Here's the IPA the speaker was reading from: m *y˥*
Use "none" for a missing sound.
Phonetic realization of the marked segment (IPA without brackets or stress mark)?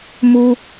u˥